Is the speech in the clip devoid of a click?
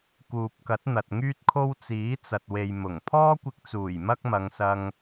yes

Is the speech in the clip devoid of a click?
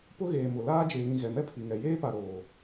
yes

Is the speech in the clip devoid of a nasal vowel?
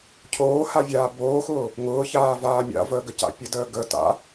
yes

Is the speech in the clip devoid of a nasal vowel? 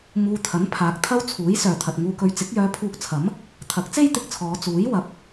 yes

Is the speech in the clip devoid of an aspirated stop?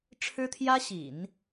no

